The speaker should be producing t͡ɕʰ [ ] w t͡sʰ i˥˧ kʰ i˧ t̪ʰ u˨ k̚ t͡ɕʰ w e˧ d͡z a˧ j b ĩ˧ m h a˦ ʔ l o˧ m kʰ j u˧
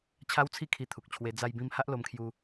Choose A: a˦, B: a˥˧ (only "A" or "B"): A